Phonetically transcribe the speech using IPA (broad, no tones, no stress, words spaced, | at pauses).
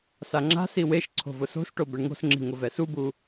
saŋ͡ǁa̤si weʃ ǀʰo̤vʊso̤sʈo bɛɳŋo̤sŋ͡ǁi̤ ŋʊvɛsubu